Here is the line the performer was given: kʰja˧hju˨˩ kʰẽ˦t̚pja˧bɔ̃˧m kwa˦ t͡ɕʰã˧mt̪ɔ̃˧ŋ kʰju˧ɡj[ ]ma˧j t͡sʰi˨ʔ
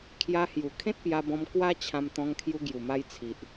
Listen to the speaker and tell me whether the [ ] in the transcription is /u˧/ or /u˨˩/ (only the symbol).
u˨˩